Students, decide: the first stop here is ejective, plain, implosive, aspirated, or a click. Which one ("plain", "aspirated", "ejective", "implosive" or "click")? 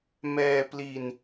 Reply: plain